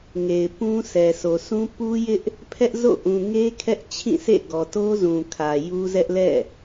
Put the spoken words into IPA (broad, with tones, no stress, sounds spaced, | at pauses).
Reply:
ŋ e˨ ɪ̯ p ũ˦ s ɛ˨ sʰ o˨ s ũ˦ p u˦ j ɪ˦ ʔ | pʰ ɛ˦ ʔ z o̰˦˨ ʔ ũ˨ ŋ e˦ kʰ ɛ˦ ʔ t͡ɕʰ ĩ˦˨ sʰ ḛ˦˨ ɡ ɔ˨ t o˦ z ũ˨ kʰ ä˨ j u˦ z ɛ˦ ʔ l ɛ̰˦˨